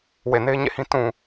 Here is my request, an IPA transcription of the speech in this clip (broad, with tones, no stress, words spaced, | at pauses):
we˨ne˦ɪ̯ɲḛ˦˨hĩ˦ tũ˨